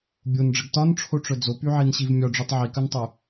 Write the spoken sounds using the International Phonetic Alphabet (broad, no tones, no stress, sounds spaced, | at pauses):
bʲ o n ɖ͡ʐ ə ɡ t ɒ n ʈ͡ʂʰ o ʈ͡ʂ œ d͡z o p y ʕ i n ɕ i v mʲ ɒ ɖ͡ʐ y tˤ ʕ i k œ n tˤ y